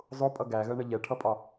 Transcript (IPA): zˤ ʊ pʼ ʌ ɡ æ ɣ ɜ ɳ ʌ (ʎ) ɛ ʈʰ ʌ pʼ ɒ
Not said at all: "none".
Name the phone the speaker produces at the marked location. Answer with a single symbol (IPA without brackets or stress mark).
ʎ